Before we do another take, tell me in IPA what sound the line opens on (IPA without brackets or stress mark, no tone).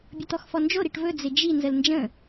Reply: bʲ